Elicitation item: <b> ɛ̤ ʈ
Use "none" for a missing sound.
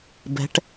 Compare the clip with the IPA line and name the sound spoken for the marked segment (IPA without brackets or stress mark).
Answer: b